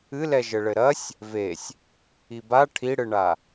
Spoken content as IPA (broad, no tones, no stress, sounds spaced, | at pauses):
ɨ l ɛ ʒ ɘ ɭ ɘ ɾ ɐ sʲ | v e sʲ | i b a ʈʰ i ɽ ɨ ɳ a